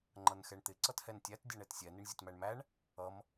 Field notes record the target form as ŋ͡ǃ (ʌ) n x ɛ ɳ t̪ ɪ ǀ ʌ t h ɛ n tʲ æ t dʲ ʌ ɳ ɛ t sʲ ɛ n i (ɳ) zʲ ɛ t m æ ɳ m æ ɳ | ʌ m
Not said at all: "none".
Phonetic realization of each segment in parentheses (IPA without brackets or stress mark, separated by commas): ʌ, ɳ